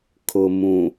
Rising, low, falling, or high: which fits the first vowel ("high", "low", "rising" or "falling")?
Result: low